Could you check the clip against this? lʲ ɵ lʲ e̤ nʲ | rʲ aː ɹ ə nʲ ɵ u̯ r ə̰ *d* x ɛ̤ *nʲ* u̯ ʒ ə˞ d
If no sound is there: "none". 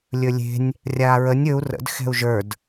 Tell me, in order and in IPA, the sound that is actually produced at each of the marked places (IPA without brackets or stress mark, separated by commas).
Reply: d, none